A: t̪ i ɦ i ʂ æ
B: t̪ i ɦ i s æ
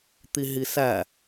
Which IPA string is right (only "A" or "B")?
B